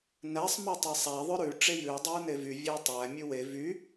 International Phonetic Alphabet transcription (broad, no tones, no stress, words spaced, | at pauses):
næsˤ motˤesˤæ ðˤœɾʉ ʈ͡ʂejʉu̯ dˤʉu̯nevy vʲætˤæ mʲʉwe vy